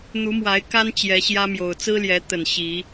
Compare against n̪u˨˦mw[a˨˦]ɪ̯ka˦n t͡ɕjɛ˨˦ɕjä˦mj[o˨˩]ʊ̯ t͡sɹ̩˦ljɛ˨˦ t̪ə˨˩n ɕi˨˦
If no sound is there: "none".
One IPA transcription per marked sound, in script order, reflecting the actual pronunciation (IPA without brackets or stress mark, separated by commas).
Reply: a˨˦, o˨˩